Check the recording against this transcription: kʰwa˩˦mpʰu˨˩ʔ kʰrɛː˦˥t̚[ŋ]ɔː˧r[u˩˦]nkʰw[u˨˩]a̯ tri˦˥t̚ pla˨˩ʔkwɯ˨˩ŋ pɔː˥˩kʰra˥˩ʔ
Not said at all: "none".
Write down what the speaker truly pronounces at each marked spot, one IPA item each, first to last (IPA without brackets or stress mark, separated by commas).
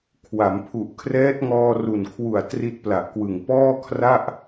ŋ, u˨˩, u˨˩